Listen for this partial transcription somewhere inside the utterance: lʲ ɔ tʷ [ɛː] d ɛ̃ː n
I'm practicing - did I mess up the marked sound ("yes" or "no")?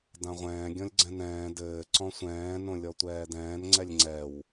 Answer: no